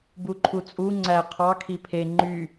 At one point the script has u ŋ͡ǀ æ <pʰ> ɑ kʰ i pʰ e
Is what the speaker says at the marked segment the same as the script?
no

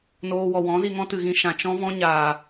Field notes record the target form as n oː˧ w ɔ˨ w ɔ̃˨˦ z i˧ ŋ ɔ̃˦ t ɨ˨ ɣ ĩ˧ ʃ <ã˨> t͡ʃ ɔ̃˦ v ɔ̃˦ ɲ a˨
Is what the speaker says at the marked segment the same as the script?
yes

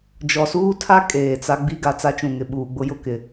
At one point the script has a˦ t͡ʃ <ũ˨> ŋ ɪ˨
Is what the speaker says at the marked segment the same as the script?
yes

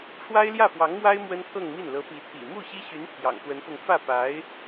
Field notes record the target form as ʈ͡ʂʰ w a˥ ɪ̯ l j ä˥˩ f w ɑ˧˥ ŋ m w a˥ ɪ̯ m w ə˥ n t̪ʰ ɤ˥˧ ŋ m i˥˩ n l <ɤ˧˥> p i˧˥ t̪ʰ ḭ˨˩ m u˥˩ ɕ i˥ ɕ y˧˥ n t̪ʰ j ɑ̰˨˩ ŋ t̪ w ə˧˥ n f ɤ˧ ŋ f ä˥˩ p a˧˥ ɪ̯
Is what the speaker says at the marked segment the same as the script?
yes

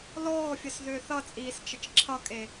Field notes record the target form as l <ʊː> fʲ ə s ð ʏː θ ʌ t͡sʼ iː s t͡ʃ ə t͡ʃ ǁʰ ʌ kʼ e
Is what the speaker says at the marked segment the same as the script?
no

